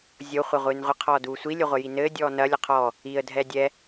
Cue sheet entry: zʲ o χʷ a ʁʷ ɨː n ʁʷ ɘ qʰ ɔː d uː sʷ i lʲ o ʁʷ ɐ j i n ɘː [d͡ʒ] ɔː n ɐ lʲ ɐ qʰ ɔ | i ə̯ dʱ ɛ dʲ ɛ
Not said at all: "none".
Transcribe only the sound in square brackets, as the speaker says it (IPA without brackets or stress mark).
dʲ